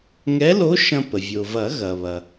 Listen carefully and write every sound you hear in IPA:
ŋ ɛ˧˥ l o˧˥ ʃ ɐ̃˧ p ə˩ vʲ o˩ v ɐ˨˩˦ ɣ ɐ˩ β ɐ˩

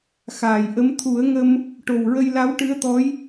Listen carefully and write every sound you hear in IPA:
x aː˨˩˨ j ʔ ə˧˥ m t̪ʰ u˨˩˦ ə̯ ŋ ə˧ m | ʈ o˨˩ w ɹ ə˧ j l a˧˥ w ʈ ɨ˧˥ ə̯ t̪ ɔ˧˥ j

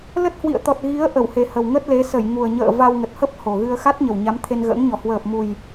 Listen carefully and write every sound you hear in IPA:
l ə˦˥ t̚ h w ḭ˧˨ ə̯ t̪ ɔ˨˩ t̚ ɣ i˨˦ ə̯ ʔ ə˧˩ w h e˨˩ h ə˨˩ w ŋ ə˦˥ t̚ l e˨˦ s ə˧˩ j ŋ u˨˩ ə̯ ɲ ə̰ː˧˨ v a˧ w ŋ ə˨˩ t̚ h ə˦˥ p̚ h o˨˩ ɣ ɨ˧ ə̯ x a˦˥ t̚ ɲ ə˨˩ w ɲ a˨˦ m t̪ʰ e˧ n ɣ ə̰ː˧˥ ŋ ɲ ɔ˨˩ h w əː˨˩ p̚ m u˨˩ j

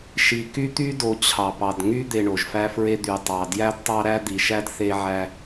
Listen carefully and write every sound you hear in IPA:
ʃ i˨ k y˦ t̪ y˦ d o˨ t͡ɕʰ ɑ˨ p ɑ˨ d ŋ y˦ d̪ e˨ ɳ o˨ ʒ f æ˦ f ɹ e˦ d̪ y˨ tˤ ɑ˨ d j æ˦ d tˤ ɑ˦ ɾ æ˦ d̪ i˨ ʃ æ˦ d θ e˦ ʕ æ˦

